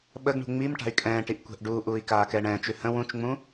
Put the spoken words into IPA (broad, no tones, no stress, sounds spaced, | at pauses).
ɓ ə ɡ ɳ ṳ ŋ͡m i m ʈ a̤ y̯ kʼ ɛ̃ː ʈ i ʔ kʷ ɛ̤ ʔ ɖ uː ʔ uː i̯ k aː k ɛː ɳ ɛ̃ː t͡ʃ ʉ h ə̃ w ũ t͡ʃ ŋ͡m ũ